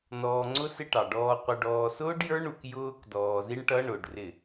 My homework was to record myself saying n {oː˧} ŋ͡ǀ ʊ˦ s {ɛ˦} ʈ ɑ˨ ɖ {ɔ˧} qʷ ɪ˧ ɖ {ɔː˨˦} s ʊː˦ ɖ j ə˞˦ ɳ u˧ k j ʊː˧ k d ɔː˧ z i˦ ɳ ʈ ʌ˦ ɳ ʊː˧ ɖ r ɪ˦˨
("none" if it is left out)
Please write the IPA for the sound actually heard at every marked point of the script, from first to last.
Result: ɔː˧, ɪ˦, ɔː˧, ɔː˧

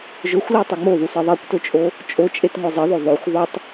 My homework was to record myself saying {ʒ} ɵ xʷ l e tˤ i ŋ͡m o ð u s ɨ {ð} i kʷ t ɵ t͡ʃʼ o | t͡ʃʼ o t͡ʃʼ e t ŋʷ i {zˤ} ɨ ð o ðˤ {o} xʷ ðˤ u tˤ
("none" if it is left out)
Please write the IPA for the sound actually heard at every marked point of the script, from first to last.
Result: ʒ, ðˤ, zˤ, o

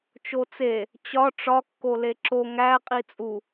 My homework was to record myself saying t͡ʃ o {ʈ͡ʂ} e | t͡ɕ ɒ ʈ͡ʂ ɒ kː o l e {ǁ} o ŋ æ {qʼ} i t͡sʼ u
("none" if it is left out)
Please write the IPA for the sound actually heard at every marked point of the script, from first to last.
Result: t͡s, ǁ, qʼ

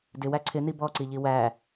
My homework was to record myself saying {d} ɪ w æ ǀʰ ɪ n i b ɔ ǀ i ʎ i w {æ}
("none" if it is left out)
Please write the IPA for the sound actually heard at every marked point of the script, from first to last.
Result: d, æ

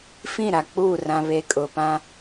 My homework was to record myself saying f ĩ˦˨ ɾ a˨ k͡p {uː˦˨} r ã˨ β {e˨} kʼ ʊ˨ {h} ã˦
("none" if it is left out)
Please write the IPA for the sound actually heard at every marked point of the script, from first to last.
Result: uː˦˨, e˨, p

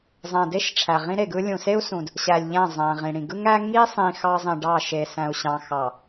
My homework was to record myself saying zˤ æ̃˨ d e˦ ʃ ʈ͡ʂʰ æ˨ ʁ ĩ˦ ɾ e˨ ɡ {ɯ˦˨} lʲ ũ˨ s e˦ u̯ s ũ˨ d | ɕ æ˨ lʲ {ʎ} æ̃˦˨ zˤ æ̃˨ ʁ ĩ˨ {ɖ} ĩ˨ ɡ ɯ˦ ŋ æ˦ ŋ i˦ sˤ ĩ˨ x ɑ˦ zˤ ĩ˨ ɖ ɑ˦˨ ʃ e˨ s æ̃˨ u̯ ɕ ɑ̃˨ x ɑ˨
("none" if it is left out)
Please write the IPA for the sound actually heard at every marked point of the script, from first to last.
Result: ɯ˦, ʎ, ɽ

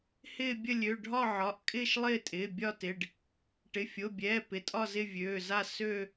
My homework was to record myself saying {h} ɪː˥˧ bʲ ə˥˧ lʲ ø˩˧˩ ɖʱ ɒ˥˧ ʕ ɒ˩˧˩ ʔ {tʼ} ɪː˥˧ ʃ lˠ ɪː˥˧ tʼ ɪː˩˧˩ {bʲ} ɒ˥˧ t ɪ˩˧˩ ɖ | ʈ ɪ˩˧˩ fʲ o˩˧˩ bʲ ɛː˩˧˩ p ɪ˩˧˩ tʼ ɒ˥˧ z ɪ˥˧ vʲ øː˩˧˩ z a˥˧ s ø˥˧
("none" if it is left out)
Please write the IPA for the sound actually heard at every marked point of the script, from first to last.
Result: h, kʼ, bʲ

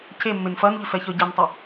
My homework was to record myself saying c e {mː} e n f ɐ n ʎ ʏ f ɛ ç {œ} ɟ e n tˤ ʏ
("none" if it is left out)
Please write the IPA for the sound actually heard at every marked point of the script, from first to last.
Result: mː, œ

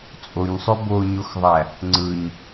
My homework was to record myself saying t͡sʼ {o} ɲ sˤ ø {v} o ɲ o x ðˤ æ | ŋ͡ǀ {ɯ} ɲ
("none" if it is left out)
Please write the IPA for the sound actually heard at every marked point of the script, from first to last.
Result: o, b, ɯ

